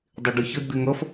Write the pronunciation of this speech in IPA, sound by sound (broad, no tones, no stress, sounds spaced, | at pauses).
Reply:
dˤ e ɖ ɨ ç ə d d̪ e ŋ ʌ f